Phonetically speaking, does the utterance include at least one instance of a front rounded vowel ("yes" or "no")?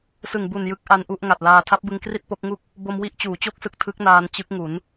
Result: no